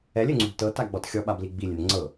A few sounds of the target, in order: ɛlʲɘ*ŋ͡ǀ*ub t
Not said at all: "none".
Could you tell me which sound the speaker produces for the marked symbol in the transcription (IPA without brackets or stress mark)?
ŋ͡ǀ